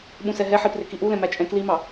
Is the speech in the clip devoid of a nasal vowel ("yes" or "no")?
no